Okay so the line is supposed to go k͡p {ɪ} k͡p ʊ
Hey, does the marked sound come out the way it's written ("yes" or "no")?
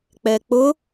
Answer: no